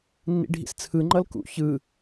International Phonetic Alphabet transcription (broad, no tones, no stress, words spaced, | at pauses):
nːḭɖʱḭst͡sʰɯ ŋ͡ǃʌlkṵ çɯ